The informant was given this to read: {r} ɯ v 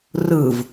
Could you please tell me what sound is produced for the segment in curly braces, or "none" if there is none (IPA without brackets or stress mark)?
r